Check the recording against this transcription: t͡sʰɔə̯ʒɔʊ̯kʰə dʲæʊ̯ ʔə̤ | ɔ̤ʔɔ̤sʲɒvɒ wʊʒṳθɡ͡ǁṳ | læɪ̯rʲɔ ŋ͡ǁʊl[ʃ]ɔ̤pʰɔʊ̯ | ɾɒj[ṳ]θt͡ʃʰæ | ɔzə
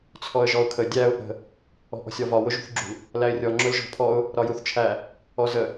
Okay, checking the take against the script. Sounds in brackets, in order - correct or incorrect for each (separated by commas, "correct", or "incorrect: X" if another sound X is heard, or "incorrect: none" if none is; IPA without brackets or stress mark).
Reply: incorrect: ʒ, incorrect: u